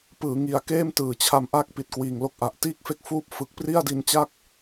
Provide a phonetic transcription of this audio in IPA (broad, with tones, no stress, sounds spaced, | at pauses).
p ɯː˩˦ ŋ i˨˩ a̯ k eː˥˩ m t ɯː˩˦ t͡ɕʰ a˧ m ʔ a˥˩ k̚ p i˨˩ t̚ k w iː˨˩ ŋ l o˦˥ k̚ ʔ a˨˩ ʔ t iː˥˩ k̚ f e˥˩ k̚ f uː˥˩ p̚ f ɯ˨˩ k̚ p r i˥˩ a̯ d i˧ n t͡ɕ a˥˩ k̚